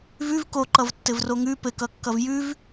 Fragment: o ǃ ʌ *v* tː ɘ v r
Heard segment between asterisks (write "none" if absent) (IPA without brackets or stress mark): v